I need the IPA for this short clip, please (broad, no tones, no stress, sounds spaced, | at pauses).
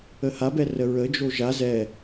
ə h a b ɛ r ə ɹ ə d͡ʒ o ʒ a z ɛ